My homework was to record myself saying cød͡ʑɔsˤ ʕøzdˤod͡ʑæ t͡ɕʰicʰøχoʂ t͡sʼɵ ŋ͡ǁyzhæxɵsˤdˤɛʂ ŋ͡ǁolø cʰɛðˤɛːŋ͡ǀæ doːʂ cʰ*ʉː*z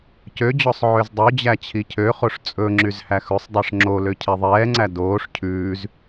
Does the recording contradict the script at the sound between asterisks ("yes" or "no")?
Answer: no